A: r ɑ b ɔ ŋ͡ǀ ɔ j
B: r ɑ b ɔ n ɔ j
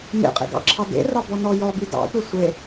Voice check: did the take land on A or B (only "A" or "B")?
B